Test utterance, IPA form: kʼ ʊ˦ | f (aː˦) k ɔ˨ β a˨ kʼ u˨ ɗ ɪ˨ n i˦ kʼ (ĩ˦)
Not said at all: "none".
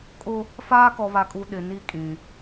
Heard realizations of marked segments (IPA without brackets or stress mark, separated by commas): aː˦, ĩ˨